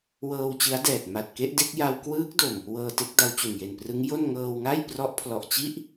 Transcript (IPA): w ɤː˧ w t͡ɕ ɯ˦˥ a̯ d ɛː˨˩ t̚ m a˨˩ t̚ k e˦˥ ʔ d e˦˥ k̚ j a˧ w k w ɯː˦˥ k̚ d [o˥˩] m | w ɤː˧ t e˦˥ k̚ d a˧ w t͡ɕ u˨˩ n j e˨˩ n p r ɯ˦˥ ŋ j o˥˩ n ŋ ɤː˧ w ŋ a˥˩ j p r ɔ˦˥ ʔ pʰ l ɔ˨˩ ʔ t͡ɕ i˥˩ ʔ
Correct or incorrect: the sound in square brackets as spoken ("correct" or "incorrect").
incorrect